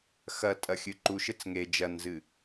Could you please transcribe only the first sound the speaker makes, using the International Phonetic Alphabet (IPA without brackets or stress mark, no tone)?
x